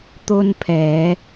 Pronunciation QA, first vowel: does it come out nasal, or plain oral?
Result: oral